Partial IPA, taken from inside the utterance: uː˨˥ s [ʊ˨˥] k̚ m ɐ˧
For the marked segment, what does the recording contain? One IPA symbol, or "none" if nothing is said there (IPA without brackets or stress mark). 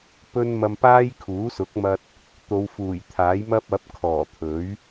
ʊ˨˥